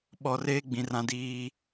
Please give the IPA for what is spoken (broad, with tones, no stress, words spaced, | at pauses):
ɓɔ˨ reː˦ɡ͡bĩ˨rã˨ diː˨